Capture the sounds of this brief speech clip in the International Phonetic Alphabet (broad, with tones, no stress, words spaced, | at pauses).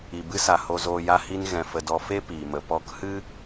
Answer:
i˧bɨ˦sa˧ ho˦zoː˦ ja˦hi˦n ɣɛ̃˧fə˧dɔ˧ fe˦ piː˧mə˧ pɔ˧khɨ˦